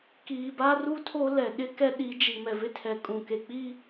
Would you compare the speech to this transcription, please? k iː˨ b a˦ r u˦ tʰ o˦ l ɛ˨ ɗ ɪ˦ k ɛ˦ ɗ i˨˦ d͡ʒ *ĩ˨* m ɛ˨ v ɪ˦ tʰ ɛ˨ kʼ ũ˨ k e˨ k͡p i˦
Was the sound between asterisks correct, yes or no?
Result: no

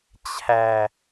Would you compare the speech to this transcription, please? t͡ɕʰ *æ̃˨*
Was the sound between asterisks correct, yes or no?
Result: no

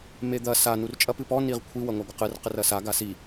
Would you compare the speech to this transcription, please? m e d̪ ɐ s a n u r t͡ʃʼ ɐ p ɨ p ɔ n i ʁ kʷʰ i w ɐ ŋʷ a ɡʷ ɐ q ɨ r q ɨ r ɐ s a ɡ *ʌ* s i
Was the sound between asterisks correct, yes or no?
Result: no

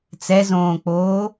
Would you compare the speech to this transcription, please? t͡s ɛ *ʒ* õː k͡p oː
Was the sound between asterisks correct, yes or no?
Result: no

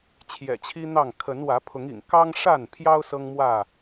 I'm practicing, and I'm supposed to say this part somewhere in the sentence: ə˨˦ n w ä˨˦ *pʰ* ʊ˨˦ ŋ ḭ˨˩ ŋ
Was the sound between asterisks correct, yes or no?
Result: yes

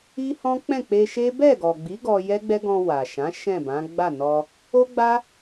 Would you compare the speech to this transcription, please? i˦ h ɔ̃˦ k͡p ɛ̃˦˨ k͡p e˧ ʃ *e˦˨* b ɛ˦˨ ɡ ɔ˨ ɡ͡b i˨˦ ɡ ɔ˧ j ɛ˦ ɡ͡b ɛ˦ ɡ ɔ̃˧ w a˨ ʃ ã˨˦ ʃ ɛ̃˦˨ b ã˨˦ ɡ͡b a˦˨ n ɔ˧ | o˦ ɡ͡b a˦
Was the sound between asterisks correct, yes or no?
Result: no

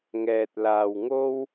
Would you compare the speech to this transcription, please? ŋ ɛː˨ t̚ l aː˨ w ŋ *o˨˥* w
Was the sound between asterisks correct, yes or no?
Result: no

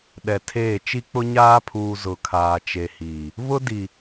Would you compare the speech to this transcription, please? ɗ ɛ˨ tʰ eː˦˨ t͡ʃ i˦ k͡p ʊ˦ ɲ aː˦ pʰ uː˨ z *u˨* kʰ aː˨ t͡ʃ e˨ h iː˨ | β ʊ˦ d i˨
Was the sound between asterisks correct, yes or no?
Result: no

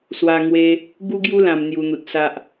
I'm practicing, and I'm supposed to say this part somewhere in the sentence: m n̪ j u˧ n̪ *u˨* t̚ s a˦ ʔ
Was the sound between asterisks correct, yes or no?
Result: yes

